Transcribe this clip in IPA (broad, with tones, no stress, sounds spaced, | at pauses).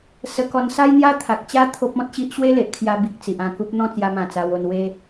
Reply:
s ə˧ k ɔ˧ n s a˦ j n̪ j a˥˧ t̪ʰ a˨ k̚ t͡ɕ a˦ t̪ʰ o˦ p̚ ɔ̃˦ t̚ ɕ i˦ ʔ ɕ w e˦ l e˨ ʔ kʰ j a˧ b i˨ k̚ t͡s i˨ ʔ ã˧ k u˦ p̚ n̪ ɔ̃˥˧ t͡s j a˧ m ã˨˩ t͡s a˧ w o˧ n w e˦